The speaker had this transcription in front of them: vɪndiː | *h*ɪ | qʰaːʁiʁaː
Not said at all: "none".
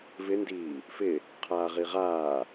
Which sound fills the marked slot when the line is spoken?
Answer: f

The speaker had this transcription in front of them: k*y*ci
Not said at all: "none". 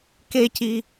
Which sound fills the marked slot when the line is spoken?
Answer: e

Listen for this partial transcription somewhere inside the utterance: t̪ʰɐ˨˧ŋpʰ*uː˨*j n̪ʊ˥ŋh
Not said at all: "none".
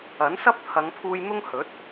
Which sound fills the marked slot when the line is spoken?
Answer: uː˧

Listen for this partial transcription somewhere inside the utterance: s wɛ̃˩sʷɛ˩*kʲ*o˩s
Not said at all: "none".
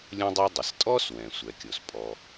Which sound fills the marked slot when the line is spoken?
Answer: kʲ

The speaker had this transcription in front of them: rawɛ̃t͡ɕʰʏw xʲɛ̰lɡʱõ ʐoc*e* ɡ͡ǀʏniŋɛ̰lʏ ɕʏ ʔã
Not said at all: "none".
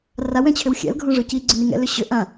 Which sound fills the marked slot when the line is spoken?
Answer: i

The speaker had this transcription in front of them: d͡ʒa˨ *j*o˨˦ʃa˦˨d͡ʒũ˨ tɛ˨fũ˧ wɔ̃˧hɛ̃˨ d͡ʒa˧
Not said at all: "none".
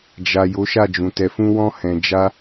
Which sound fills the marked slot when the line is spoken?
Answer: j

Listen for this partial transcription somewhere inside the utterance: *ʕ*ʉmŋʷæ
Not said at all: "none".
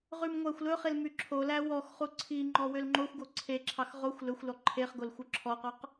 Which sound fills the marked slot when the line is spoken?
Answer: ʁ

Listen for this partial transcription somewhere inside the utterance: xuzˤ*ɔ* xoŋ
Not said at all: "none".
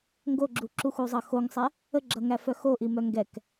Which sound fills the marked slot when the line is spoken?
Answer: ʌ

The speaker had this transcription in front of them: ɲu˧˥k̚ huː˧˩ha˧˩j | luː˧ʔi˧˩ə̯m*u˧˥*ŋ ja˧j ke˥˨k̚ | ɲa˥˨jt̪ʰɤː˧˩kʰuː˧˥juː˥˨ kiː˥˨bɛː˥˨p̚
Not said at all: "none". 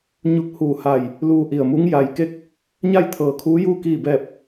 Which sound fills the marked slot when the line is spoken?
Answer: u˧˥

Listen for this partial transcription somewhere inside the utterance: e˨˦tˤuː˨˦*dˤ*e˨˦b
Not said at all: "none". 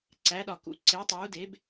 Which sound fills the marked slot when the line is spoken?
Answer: d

